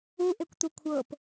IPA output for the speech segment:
u ʔ e kʷ t̪ u kʷʰ ɤ p

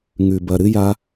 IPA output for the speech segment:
ŋ ʉ˨ b ɐ˨ ɾ ɨ˧ j a˧

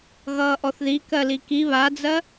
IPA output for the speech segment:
ɣ ʌː ʔ ɔ θ ð i k ɜ l i k i β a d͡z ɜ

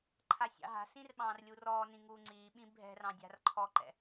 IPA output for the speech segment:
ǃʰ a sʲ ɑ̰ ɦ a̤ s ĩ r ɓ ɑ̃ː r lʲ uː r ɔː n ĩ ŋ uː ŋ͡ǀ iː ɓ ĩ bʱ ɛ̤ r ɑ̃ dʲ a̤ r ǃʰ ɔ ǃ ɛ̰

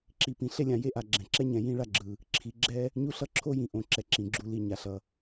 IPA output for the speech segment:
ǁ i˨ p ĩ˨ ɬ e˥ lʲ ã˨ j e˥ ʔ a˨ ɡ͡ǁ ɛ̃˩ ǁ ɛ˥ ɲ ɛ̃˨ j ĩ˦ ɭ a˥ ɡ͡ǁ ɯ˩ | ǁʰ i˨ ɡ͡ǁ ɛ˦ | ɲ u˦ ɬ ʌ˦ ǁʰ o˥ j ĩ˨ ʔ õ˨ ǁ ɛ˩ ǁ ĩ˩ ɡ͡ǁ u˨ l i˨ ɲ a˩ ɬ ʌ˩

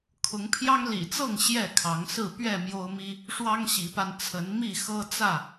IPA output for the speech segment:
kʰ ʊ˨˦ ŋ pʰ j ɑ˦ ŋ l ḭ˨˩ t͡s ɤ˥˨ ŋ ɕ j ɛ˥˨ kʰ ɑ˨˦ ŋ s ɹ̩˥˨ p ɥ ɛ˥˨ m j o˦ ʊ̯ m i˦ | ʂ w ɑ˦ ŋ ɕ i˨˦ p a˧ n t͡sʰ ə˨˦ n m i˥˨ x ɤ˦ t͡s ä˥˨

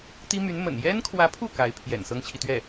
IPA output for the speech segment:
t̪ i˥ m y˧˥ n m ə̰˨˩ n j ɛ˥ n kʰ w ä˧˥ pʰ u˥˩ k a˧˥ ɪ̯ pʰ j ɛ̰˨˩ n s ɤ˥ ŋ t͡ɕʰ i˨ t̪ ɥ ɛ˥˩

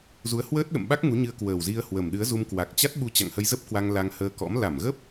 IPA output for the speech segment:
z u˨˦ ə̯ h w əː˦˥ t̚ ɗ ə̰˧˨ m ɓ a˦˥ k̚ ŋ u˨˦ ɲ ɨ˧ ə̯ k w əː˨˩ w z i˧ ə̯ h w ə˨˩ m ɗ ɨ˨˦ ə̯ z u˧ m k w a˨˩ k̚ t͡ɕ a˦˥ t̚ ɓ u˧ t͡ɕ a̰˧˨ ŋ h ə˧ j z ə˦˥ p̚ k w a˧ ŋ l a˧ ŋ h əː˧ k ɔ̰˧˥ m l a˧˩ m ɣ ə˦˥ p̚

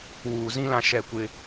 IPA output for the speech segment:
w uː˨ z ĩ˦ l ã˦ ʃ ɛ˦˨ kʷ ɪ˦

